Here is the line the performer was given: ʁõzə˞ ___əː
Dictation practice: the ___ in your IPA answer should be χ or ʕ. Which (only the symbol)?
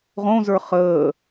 χ